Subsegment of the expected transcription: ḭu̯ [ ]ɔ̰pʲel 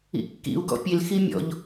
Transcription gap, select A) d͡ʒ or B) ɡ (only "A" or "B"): B